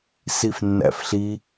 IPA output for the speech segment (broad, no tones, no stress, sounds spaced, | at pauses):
s i f nː æ̰ f ɬ i